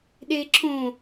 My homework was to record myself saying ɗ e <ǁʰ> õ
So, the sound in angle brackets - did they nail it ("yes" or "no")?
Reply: yes